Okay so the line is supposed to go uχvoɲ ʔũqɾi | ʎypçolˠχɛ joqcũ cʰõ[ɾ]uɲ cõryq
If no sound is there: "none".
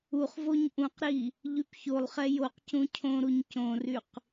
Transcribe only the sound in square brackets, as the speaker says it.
ɾ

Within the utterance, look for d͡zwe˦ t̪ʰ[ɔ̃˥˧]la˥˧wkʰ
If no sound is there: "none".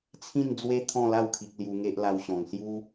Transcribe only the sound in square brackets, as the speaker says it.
ɔ̃˥˧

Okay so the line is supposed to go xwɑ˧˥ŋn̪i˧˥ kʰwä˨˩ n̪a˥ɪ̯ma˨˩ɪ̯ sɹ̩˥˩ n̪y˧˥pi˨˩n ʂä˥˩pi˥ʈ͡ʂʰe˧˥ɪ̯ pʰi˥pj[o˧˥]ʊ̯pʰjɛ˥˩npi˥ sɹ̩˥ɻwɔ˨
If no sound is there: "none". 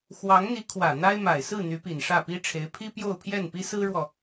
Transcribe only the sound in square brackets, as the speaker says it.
o˥˧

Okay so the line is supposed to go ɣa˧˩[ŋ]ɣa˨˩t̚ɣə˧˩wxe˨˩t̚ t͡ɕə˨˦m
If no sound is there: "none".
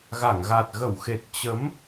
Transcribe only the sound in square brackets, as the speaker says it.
ŋ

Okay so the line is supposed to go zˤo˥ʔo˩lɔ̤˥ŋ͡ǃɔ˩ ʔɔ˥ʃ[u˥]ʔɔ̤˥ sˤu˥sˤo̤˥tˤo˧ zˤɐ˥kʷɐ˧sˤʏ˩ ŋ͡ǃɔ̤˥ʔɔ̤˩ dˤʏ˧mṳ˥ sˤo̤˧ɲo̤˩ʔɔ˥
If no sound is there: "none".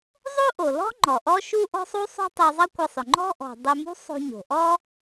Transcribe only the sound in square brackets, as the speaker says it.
u˥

